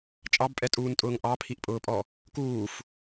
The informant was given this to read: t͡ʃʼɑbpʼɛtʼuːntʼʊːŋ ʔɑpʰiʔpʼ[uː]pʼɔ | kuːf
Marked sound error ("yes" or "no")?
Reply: yes